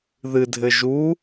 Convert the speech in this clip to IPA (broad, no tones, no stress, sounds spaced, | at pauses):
ð ɨ dʱ ɘ ʒ u